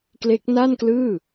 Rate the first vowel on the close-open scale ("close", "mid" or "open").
mid